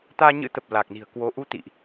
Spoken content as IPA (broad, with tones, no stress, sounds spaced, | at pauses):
t̪ aː˧ ɲ ɨ̰˧˥ t̪ ə˨˩ p̚ l a˨˩ k̚ n i̤˨˩ ə̯ k w o˧ ʔ u˧ t̪ ḭ˧˨ ʔ